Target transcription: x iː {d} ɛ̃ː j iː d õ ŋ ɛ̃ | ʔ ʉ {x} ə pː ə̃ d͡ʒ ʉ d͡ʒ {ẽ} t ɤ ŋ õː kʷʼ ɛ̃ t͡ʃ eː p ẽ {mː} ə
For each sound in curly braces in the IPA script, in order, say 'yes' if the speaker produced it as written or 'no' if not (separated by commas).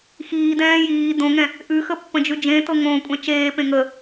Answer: yes, yes, yes, no